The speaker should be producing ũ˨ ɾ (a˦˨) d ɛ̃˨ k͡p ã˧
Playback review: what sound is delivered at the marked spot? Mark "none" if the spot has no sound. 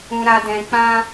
a˨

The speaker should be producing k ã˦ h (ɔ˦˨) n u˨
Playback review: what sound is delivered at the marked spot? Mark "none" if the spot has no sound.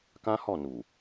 ɔ˦˨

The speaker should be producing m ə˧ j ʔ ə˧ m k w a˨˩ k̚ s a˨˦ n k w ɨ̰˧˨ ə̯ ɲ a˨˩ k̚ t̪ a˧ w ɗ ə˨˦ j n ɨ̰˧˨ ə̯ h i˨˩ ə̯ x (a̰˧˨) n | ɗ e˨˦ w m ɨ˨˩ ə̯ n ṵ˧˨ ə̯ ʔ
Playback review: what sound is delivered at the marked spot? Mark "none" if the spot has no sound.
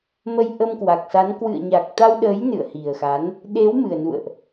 a˨˦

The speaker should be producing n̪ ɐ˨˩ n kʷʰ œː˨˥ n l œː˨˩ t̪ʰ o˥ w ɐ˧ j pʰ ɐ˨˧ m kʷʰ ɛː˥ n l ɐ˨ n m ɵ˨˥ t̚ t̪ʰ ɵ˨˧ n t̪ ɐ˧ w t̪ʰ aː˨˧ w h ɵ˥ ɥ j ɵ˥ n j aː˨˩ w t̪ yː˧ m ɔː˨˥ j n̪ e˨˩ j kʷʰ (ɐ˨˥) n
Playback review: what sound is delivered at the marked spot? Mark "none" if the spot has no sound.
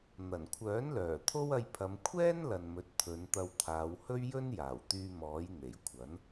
ɐ˨˥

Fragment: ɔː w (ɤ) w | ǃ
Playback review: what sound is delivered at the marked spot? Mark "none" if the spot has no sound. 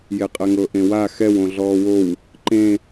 o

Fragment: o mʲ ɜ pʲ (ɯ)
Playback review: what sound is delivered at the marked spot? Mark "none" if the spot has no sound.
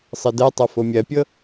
ɤ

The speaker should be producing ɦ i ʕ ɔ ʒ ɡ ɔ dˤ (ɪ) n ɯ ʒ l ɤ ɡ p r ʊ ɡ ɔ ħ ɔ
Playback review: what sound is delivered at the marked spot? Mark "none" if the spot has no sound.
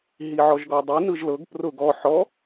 i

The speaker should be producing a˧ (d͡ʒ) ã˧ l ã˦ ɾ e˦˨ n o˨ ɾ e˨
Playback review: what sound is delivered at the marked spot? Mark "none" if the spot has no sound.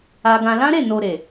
ɡ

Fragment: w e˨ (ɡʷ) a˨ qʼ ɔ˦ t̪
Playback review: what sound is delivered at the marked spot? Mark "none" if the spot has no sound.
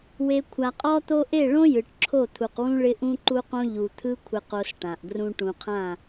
kʷʰ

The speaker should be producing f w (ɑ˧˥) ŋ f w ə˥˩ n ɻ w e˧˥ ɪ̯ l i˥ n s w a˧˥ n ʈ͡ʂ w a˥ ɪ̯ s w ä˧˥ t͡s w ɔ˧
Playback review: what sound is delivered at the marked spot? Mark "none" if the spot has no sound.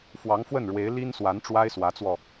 ɑ˧˥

